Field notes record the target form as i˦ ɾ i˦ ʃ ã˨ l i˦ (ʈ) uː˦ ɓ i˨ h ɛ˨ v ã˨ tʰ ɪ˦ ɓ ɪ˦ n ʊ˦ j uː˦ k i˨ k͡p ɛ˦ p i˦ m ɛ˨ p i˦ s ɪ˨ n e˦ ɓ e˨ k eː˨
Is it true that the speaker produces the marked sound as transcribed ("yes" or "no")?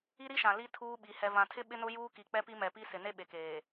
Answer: no